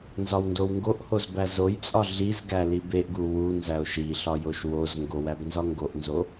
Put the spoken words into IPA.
n z ɒ w n d o w ŋ ɡ o ʔ h o z b æ z o j t͡sʼ ɒ ɮ i z ɡ æ l i b e ʔ ɡ u w u n z æ o̯ ʃ i ɬ ɒ j o ʃ w o z ŋ ɡ o w æ b n z ɒ ŋ ɡ o ʔ n z o

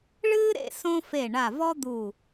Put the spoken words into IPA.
ɭ ɨː˥ ɾ ḛ˥˧ s õ˥ f e˧˩ ɳ a˧˩ v ɔ˥ d̪ u˧˩

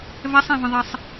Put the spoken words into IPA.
v ɛ sˤ ẽ v ə̃ ðˤ e sˤ

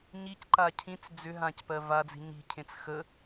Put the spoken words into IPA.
ɲ i c ǃ a cʰ ĩ t͡s d͡z ʏ ɦ ã c p ɜ v a d͡z i̤ ɲ i̤ cʰ ẽ t͡s x ə

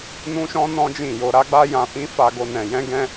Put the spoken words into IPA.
n ũ˦ ʃ ɔ̃˦ n ɔ̃˦ d͡ʒ ĩ˦˨ j o˧ ɾ a˦ ɡ͡b a˦ j ã˧ f ĩ˦ f a˧ ɡ o˧ n ɛ̃˧ j ɛ̃˦ ɡ ɛ̃˦

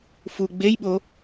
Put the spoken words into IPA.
f u ɡ͡b e j ɓ o

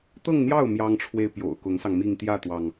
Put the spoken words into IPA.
t̪ ɤ˥˧ ŋ n̪ j ɑ˥˩ ʊ̯ m j ɑ˥ ŋ ʈ͡ʂʰ w e˥ ɪ̯ p j o̰˨˩ ʊ̯ k ʊ˧˥ ŋ s ɑ˧ ŋ m i˥˧ ŋ t̪ j ä˥˩ t̪ w ɑ˩ ŋ

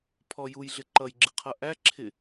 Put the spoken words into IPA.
pʰ ɔ j u j ɮ ɪ ǃ ʌ j ɡ͡ǁ ɪ qʰ ʌ ʔ æ ǁʰ ɪ

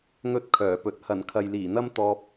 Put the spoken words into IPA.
ŋ ɵ˥ t̚ kʰ œː˨˩ p ɵ˨˥ t̚ h ɐ˨˩ n kʰ ɐ˨ j l iː˨˩ n̪ ɐ˥ m t̪ ɔː˧ p̚

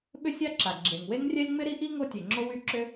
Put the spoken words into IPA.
ɓ ʏ˥ sʲ a˥ ǁ a˩ ɡ͡ǁ e˩ ŋ w e˥ ŋ rʲ ɛ˥ lʲ ŋ͡m ɪ˥ ɾ i˥ ʔ i˥ ŋ o˥ tʲ e˩ ŋ͡ǁ o˥ w y˥ ǁ ʏ˥

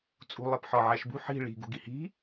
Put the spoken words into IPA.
t͡sʼ ṳ lˠ e p ħ ɒ ʕ æ ʃ b ṳ ħ i̤ ɭ i̤ ɡ ṳ ɡ i h i̤

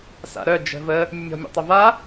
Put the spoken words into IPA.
s a̰ ɾ œ d͡ʒ ə̤ v ə | mʲ ə mʲ ɔ̤ mʲ ḛ tˤ ɪ v a

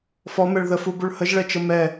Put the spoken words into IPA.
f ɔ m ɛ ɭ ð ə f u b u ɭ h ə ʒ ɭ ɛ t͡ʃ ə m ɛ

